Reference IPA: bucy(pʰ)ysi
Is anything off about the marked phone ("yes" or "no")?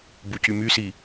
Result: yes